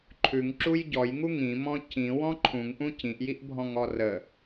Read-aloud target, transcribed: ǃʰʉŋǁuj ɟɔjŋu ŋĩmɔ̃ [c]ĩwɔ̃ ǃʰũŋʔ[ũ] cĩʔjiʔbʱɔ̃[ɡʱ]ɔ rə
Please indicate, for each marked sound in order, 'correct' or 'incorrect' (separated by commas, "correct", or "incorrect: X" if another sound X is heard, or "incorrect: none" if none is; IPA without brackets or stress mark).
correct, correct, incorrect: ŋ